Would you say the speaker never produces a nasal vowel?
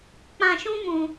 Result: no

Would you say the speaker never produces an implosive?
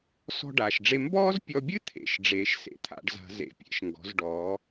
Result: yes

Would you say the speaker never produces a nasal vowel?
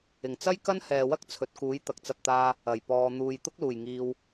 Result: yes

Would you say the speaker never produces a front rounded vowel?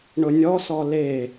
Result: yes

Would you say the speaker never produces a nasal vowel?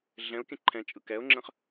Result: no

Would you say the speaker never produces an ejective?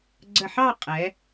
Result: no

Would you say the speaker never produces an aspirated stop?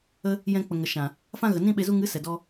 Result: yes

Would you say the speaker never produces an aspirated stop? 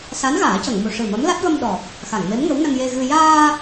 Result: yes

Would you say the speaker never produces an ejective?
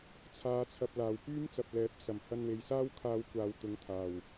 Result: yes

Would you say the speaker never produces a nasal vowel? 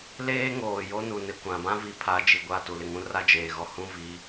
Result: no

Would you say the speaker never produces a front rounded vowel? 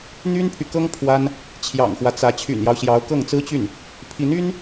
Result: no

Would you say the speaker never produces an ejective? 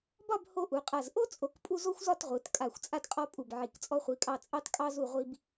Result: no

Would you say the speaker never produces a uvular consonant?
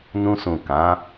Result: yes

